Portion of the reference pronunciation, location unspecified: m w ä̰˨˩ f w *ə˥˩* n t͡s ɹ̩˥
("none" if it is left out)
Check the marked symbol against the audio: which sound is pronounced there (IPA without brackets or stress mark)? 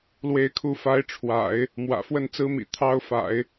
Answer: ə˥˩